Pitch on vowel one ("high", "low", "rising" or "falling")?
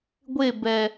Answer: falling